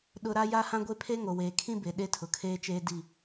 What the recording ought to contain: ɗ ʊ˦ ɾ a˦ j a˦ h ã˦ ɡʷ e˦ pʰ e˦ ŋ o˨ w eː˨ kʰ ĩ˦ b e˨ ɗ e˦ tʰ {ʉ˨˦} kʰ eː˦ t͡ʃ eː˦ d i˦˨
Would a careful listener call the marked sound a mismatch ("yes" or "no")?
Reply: yes